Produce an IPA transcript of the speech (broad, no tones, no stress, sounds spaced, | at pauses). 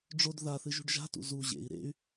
ɖ͡ʐ o d ð a θ ɨ ʒ ṳ ɖ ʒ a̤ t ṵ z u ʑ ḛ i̯ ɾ ḛ y̯